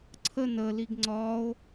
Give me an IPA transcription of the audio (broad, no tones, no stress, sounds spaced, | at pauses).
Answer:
ǀʰ ə n ə l i ɡ ŋ͡ǀ ɒ o̯